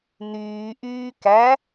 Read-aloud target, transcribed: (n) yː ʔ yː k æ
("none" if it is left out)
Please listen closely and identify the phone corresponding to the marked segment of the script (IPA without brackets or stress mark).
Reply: n